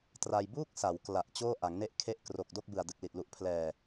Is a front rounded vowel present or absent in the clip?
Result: absent